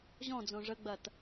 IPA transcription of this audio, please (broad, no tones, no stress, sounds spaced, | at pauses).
ʑ ɔ̃ d͡z õ ʐ ə ɡ͡b ɐ t